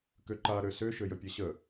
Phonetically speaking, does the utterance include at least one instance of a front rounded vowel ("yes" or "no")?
yes